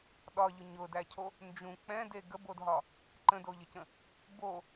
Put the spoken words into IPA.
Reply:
ɗ ɒ ʎ ʊ ɲ ʊ d æ cʰ o | n d͡ʒ ũ k͡p ɛ̃ d e ɡ ə b o d ɦ ɒ | ǃ ə̃ d o ʎ ə c ə̃ | b o

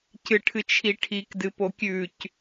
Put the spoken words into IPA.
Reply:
c ɨ ʈʰ ɨ t͡ʃʰ i ʈʰ i k d ɨ p o kʲ ʉ c

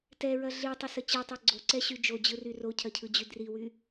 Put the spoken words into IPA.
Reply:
t ɛ ɹ ɐ ɮ i tˤ ə s ə t͡ɕ i tˤ ɛ ɡ͡ǀ o ǀ ɛ ɕ y d͡ʒ o d͡ʑ ɯ r y r o cʰ ɐ cʰ ɯ d͡ʑ y d r i w y

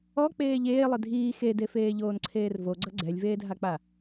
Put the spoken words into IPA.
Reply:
ɔ k͡p eː ʎ eː lˠ ɪ dʱ iː x e d e f eː ʎ oː n ǀʰ eː r v o ɡ͡ǀ ʌ ɡ͡ǀ ɛ lʲ v eː dʱ a k͡p a

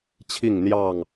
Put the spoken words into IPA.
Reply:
t͡ɕʰ i˥˨ ŋ n̪ j ɑ˥˨ ŋ

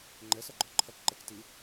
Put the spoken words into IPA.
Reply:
ŋ͡ǃ ɛ s ʌ ɡ͡ǃ ɔ ǃʰ ʌ k ǃ ɛ k t i

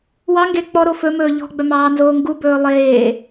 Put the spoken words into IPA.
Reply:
w ɑ ŋ ɡ e k͡p ɔ ɾ o f ɵ m ɵː ʎ ɔ̤ ɡ͡b œ m ɑː n z oː ŋ ɡ u b ɵː lˠ eː

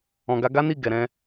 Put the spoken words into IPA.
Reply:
ɔ̃˨ ɡ a˧ ɡ a˦ n i˦˨ ɡ ɛ˨ ɾ ɛ̃˧

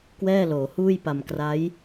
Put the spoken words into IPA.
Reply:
k w ɛː˥˩ l oː˩˦ h uː˥˩ j p a˧ m k r a˦˥ j

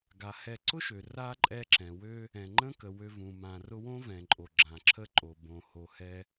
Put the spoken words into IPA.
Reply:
ɡ a˩ h ɛ˨ ǀ ʊ˥ ʃ ø˩ r a˥ ǃʼ ɛ˦ ǁ ɛ̃˩ w ø˦ | ɛ̃˩ ŋ͡ǃ ə̃˥ k ə˩ w ø˨ v ũ˩ m ã˨ r ʊ˦ w õ˥ v ɛ̃˩ ǃʼ o˩ ɡ͡ǁ ã˩ ǁʰ ə˦ ǃʼ o˩ b õ˨ h o˨ h ɛ˦

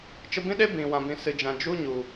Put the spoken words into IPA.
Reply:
t͡ʃ ə˧ b ĩ˦ ɗ e˦ b ĩ˨ w ã˨ b ĩ˨ s ɨ˨ d͡ʒ ã˨ d͡ʒ u˦ ɲ u˨

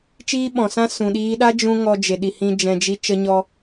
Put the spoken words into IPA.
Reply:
t͡ʃ iː˦ ɓ ɔ̃˨ s ã˦ s ũ˨ ɗ iː˦ ɗ a˦ d͡ʒ ũ˧ ŋ ɔ˧ d͡ʒ e˨ ɗ i˨ h ĩ˧ d͡ʒ ɛ̃˧ d͡ʒ i˦ t͡ʃ ə˧ ɲ ɔ˧

